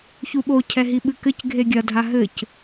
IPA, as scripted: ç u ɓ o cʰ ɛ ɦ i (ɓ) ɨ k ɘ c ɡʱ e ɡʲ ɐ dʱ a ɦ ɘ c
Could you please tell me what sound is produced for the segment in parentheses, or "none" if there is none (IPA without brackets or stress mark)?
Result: ɓ